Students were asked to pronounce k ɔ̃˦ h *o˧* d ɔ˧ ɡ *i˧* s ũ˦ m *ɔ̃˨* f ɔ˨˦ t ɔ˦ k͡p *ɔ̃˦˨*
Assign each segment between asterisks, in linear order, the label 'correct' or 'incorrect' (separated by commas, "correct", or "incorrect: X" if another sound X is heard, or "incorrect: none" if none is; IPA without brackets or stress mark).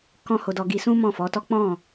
correct, correct, incorrect: ɔ̃˦˨, correct